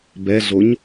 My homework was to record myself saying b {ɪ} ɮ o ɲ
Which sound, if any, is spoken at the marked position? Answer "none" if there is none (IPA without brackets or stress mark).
ɛ